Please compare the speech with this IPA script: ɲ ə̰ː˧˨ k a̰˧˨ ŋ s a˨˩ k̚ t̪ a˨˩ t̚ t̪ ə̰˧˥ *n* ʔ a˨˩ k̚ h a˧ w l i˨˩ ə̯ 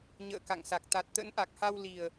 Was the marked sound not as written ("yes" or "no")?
no